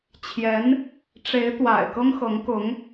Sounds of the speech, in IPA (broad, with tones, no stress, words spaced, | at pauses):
t͡ɕʰjɛ˧˥n | ʈ͡ʂe˧˥ɪ̯t̪wa̰˨˩ɪ̯ kɤ˥ŋxɤ˧˥ŋkʊ˧˥ŋ